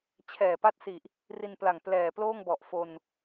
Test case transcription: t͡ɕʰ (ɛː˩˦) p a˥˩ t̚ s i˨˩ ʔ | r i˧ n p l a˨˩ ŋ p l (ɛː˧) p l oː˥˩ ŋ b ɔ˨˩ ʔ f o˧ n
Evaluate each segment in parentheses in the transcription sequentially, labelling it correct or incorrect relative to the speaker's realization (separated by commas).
incorrect, incorrect